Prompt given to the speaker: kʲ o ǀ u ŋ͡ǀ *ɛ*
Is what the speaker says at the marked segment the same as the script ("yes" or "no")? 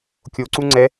yes